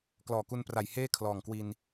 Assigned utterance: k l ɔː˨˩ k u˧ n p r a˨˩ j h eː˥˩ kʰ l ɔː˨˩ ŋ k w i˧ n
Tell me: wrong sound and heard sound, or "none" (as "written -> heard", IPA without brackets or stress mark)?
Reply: none